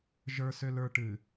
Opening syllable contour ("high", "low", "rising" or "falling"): low